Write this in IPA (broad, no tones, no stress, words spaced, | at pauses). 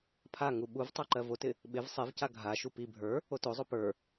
pʰa ŋuɓuvtˤo ǃɜvotɪ | ɓɪv sˤɪvca ɡʱaʃu pi bʱə˞ | otozˤo pə˞